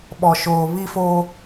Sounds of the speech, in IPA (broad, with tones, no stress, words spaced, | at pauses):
ɓɔ˨ʃoː˨ βi˦fo˦